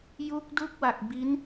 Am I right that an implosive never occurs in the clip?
yes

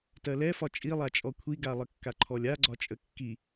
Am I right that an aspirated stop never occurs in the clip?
no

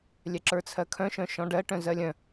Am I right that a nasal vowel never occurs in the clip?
no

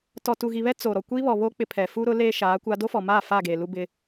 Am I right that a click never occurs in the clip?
yes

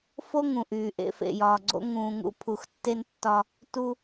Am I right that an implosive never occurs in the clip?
yes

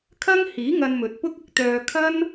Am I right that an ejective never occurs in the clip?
yes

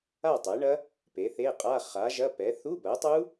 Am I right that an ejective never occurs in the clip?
no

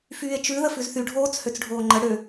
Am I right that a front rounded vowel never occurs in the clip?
no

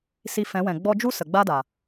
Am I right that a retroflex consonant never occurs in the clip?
yes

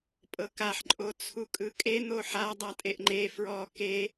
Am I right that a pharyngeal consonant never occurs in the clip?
no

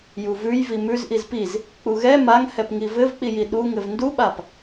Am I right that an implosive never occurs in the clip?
no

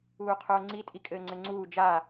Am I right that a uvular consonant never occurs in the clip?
no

